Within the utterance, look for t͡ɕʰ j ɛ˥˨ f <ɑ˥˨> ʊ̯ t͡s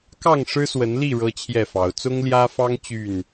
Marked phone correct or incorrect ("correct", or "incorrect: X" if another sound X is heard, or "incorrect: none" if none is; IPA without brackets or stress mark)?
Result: incorrect: ɑ˨˦